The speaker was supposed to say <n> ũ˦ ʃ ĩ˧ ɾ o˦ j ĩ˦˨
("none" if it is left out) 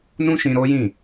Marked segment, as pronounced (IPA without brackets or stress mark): n